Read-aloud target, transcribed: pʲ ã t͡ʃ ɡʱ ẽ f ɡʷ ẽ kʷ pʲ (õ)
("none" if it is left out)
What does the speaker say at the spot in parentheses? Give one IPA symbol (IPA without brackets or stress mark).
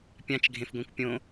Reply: õ